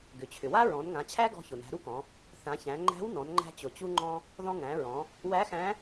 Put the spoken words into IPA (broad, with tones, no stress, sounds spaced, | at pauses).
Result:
ɡ ʏ˩ t͡ɕʰ ʏ˩ w a˥ ɹ ɔ̃˩˧ n ŋ ã˩˧ t͡ɕʰ æ˥ ɡ ɔ̤˧ ç ʊ˩ n æ̤˩˧ ɾ u˥ k ɔ̃˩˧ | θ ã˩˧ ç æ̃˩˧ ŋ͡ǃ æ̤˧˥ w n ɔ̃˩˧ n ŋ͡ǃ æ̤˧ t͡ɕ ʊ˩ t͡ɕ u˧ ŋ͡ǃ ɔ̃˧ | ð ɔ̃˧ ŋ æ̃˩˧ ɹ ɔ̃˩˧ | w æ˧˥ x æ̃˧˥